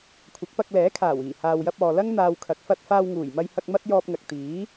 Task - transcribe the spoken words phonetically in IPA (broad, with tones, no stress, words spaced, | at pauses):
kʷʰɐ˨˥k̚pɐ˧k̚ lɛː˨˥kʰaː˨˩wiː˨˩ haː˨wjɐ˧p̚ɔː˨lɐ˥ŋ n̪aː˧wkʰɐ˨˥k̚ fɐ˧t̚faː˧w ŋuː˨˩jmɐ˧jhɐ˧k̚ mɐ˥t̚jɔː˧p̚ŋɐ˨k̚ t̪iː˨˥